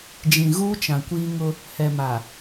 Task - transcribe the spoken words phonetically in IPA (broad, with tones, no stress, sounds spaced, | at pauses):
d͡ʒ ĩ˨ ɣ uː˦ t͡ʃ ã˨ kʷ iː˦ ŋ ʊ˦ | h ɛ˨ m a˨